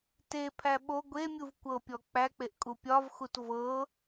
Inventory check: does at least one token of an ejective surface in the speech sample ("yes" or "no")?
yes